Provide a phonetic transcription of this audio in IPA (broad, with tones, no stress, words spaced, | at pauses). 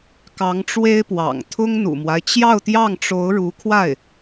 kɑ˧˥ŋʈ͡ʂwe˥ɪ̯pwɑ̰˨˩ŋ t̪ʰʊ˥ŋn̪ṵ˨˩mwa˦ɪ̯ t͡ɕjɑ˥˧ʊ̯t̪jɑ˥˩ŋʈ͡ʂo˧˥ʊ̯ ɻu˧˥kʰwa˥˩ɪ̯